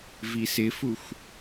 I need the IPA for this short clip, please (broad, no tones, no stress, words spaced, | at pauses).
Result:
visɪfuxʷ